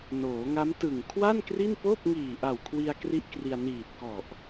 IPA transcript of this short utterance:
noː˩˦ŋa˦˥m tɯ˨˩ŋkʰwa˥˩n kri˥˩npoː˥˩p̚ ŋiː˨˩ʔa˨˩w kʰwi˧a̯ kri˥˩ʔkri˧a̯ niː˨˩t̚kɔ˨˩ʔ

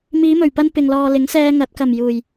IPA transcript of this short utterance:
miː˨˧mɵ˨˩ɥpɐ˧n pɪ˨ŋlɔː˨lɪ˨˥ŋ sɛː˧ŋɐ˨˥t̚kɐ˨˩m juː˨˩j

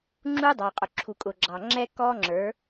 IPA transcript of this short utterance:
ŋ͡ǁuː˦dˤɑː˨qʼʊ˨ ǁʰu˨kʼʊː˨ɡ͡ǁɑː˨ŋ͡ǁɛː˦ kɔː˦ŋ͡ǁə˞˨˦

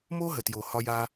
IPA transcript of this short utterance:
mo˦ɦə˨tjo˨ hɒ˧ja˧

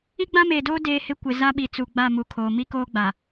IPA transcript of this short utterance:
i˦ɡ͡bã˦meː˨doː˦ deː˦hɪ˦ kʷɪ˨ za˦ɓi˨ t͡su˨ɡ͡ba˦˨mu˨kʰoː˨ mi˦koː˦ ɡ͡ba˨

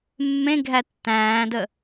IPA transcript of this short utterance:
mːẽɡʱæ tːæ̃ːdə

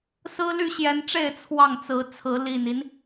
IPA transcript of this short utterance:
sɹ̩˦ly˥˨ɕjɛ˨˦nʈ͡ʂe˥˨ɪ̯ t͡sʰwɑ˥˨ŋt͡sɹ̩˨˦t͡sʰɹ̩˨˦ li˨˩ni˦n

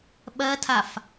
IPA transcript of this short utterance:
ɓɜtʰaf

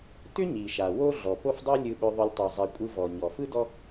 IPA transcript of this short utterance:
tʏ˥ ɲi˩ʃa˩wo˦ ɮɔ˩po˦fdˤo˦ lʲɯ˨ɓʏ˨ðˤʏ˨lʲ tˤo˩zˤi˩kʷʼɯ˨vɔ˩ ɲɔ˩ fɯ˥dɔ˦

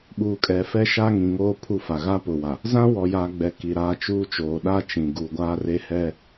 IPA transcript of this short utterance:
ɓuː˨kʼɛ˨ fɛ˦ʃa˦ ŋĩ˨ŋoː˦ pʰu˦˨fa˨ ɣa˦ pʊ˨wa˨ | zã˦ wɔ˨jaː˨ ɡ͡bɛ˨ ki˨ɾaː˦t͡ʃuː˦t͡ʃoː˨ ɗa˦t͡ʃĩ˨ ɡu˨ɡʷaː˦re˦ hɛ˦

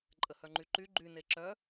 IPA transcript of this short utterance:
ǃʼəhœŋ͡ǃyǃy ɡ͡ǃyne ǁœ

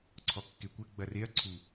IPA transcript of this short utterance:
ǀʰɔkːekʷɘ ɡ͡bɐreɐ̯ ǀʰu

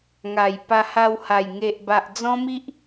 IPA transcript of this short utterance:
ŋa˨˩j pa˧ha˧wha˨˩j ŋe˨ʔba˨ʔ d͡zɔ̃˦mi˦ʔ

